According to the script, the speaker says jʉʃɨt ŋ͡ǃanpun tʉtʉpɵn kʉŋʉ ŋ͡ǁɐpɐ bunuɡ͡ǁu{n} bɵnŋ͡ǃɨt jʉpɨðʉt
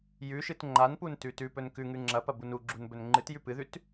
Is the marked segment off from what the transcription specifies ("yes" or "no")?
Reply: no